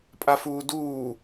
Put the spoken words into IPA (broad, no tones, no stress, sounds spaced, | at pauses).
pʼ a f uː d uː